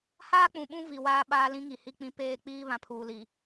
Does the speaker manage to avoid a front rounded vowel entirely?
yes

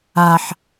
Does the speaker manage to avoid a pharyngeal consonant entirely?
no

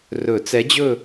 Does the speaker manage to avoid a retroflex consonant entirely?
yes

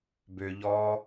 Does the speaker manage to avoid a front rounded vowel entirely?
no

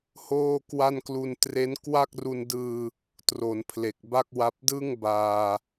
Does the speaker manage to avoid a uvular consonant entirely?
yes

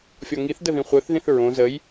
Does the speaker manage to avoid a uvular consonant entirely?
no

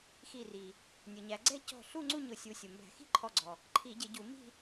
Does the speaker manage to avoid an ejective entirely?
yes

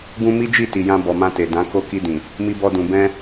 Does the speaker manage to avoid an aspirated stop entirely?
yes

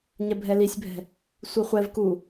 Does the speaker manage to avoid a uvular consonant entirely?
no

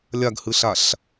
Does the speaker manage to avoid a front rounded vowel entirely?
yes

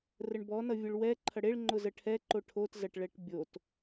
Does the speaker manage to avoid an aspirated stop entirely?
no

